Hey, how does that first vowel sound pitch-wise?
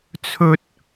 high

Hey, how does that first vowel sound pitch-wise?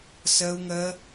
high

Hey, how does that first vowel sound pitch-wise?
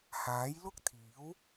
rising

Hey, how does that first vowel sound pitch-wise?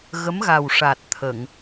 rising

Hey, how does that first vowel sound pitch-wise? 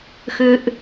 low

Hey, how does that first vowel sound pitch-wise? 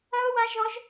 high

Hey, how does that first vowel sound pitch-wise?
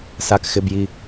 high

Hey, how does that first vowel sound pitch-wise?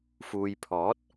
low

